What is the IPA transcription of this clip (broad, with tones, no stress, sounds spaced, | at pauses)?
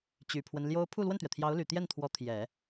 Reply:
t͡ɕ y˨˩ pʰ w ə˦ n l j o˥ ʊ̯ pʰ u˥˧ l w ə˥˩ n t̪ ɥ ɛ˩ t̪ʰ j ɑ˧˥ ʊ̯ l y˨˩ t̪ j ɛ˥˩ n t̪ʰ w ɔ˧˥ t̪ʰ j ɛ˨˩˦